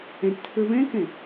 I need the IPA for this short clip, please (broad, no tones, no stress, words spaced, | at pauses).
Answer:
ɛ̃ʈtʰə˞ βɛ̃kɛ̃